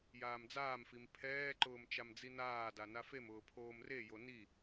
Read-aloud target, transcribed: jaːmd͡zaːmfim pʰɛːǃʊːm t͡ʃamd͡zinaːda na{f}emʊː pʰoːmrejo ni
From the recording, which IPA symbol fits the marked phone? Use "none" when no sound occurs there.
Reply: f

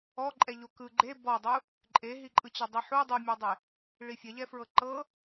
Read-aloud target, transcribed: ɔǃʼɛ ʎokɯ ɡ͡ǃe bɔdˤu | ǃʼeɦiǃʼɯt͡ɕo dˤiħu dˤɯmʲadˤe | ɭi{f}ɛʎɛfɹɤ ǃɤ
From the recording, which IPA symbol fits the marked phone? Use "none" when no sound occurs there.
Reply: fʲ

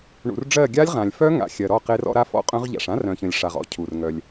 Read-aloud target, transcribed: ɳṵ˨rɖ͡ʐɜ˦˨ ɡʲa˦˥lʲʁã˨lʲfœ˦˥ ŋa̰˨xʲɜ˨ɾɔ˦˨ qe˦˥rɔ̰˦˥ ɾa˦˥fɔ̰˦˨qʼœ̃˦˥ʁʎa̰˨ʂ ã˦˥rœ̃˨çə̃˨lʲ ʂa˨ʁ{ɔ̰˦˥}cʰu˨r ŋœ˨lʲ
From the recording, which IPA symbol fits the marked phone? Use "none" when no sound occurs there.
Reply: ɔ̰˦˥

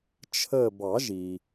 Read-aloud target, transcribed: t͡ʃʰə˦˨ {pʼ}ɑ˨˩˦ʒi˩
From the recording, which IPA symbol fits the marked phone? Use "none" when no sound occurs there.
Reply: b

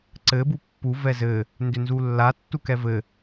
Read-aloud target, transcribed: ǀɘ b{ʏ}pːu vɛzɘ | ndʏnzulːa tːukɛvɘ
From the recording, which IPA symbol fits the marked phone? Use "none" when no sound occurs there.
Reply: u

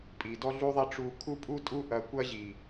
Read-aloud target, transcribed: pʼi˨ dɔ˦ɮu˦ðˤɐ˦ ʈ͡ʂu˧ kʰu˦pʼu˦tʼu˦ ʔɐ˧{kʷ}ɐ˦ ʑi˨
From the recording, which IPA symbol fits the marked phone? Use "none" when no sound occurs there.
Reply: kʷ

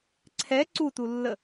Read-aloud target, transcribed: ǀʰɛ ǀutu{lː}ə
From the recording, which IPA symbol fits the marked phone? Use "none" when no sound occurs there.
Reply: lː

